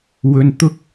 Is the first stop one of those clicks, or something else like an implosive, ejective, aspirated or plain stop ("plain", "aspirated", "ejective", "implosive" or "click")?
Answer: plain